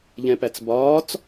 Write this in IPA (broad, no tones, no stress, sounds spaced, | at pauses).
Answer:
ʎ ɛ̃ p æ t͡s b ɒː t͡s